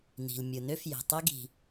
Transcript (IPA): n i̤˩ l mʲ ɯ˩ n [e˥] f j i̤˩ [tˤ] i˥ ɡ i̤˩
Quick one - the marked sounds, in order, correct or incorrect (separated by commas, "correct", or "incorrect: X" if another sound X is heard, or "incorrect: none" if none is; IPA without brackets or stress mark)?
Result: incorrect: ø˥, correct